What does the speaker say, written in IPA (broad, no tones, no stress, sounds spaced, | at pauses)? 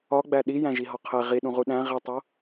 ɒ ɡ͡b æ ɗ i j æ̃ ʒ i ɦ ɒ qʰ e ʁ i ɗ ũ ʁ u ɗ æ̃ ʁ i tˤ o